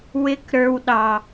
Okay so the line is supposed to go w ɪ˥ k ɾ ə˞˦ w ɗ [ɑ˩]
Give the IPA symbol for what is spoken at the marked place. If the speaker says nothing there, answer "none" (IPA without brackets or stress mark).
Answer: ɑ˩